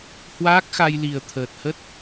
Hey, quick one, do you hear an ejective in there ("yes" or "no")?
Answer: no